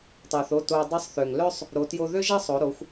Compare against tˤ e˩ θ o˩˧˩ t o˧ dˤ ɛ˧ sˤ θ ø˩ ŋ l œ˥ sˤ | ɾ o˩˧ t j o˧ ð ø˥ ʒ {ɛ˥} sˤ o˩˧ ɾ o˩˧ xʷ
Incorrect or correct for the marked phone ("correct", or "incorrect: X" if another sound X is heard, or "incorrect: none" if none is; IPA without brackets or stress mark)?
correct